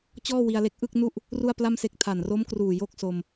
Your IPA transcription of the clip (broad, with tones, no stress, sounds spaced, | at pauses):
t͡ɕ ɔː˥˩ w i˧ a̯ l e˦˥ k̚ ʔ ɯ˥˩ k̚ n u˥˩ ʔ | r u˥˩ a̯ p l a˥˩ m s e˦˥ k̚ tʰ a˨˩ n r o˦˥ m k r uː˨˩ j oː˥˩ k̚ s o˧ m